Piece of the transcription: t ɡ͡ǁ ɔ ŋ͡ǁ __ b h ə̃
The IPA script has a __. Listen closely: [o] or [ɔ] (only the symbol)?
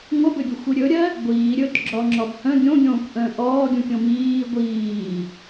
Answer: ɔ